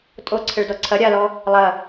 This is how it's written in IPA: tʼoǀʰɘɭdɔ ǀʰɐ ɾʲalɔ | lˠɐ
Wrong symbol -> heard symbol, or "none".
none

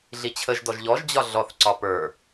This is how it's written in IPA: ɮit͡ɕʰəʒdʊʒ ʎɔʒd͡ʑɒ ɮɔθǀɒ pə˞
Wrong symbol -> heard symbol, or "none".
ʊ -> ɔ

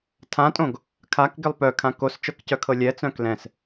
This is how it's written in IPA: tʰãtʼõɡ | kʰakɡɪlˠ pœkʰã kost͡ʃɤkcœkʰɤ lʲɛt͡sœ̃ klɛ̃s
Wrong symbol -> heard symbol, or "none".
none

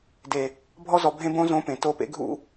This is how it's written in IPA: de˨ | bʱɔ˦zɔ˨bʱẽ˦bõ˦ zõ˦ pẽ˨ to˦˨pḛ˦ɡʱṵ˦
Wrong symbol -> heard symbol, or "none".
none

